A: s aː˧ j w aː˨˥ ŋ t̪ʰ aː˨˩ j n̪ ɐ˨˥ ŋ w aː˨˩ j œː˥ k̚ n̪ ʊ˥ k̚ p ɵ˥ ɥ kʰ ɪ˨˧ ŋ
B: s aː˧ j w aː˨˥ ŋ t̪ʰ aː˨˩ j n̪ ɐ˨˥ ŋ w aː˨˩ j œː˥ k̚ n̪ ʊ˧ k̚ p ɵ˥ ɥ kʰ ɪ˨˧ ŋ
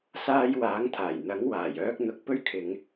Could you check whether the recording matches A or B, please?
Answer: B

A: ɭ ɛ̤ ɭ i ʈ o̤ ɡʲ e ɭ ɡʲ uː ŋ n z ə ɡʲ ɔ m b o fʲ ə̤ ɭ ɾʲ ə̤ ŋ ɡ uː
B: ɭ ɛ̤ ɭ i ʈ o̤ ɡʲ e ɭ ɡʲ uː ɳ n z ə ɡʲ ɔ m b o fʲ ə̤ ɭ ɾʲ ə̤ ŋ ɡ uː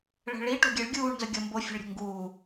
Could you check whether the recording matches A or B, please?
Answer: B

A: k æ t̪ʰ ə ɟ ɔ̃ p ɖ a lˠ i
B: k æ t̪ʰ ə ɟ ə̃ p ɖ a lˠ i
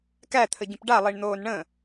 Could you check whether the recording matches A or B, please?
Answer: B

